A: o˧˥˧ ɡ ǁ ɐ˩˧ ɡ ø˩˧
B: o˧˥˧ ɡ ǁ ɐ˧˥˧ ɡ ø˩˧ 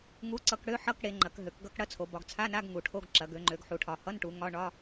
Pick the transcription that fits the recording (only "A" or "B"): A